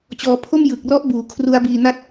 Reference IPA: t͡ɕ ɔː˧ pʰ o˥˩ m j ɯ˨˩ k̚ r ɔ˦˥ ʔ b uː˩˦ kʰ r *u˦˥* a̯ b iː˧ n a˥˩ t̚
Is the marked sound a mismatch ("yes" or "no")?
no